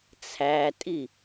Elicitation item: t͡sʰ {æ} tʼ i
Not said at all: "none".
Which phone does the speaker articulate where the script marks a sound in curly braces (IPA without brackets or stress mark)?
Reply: æ